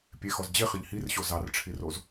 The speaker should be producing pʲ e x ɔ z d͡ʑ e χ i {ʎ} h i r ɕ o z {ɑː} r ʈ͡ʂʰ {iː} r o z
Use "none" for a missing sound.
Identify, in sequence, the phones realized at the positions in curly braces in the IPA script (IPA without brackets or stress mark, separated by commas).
ʎ, ɑ, i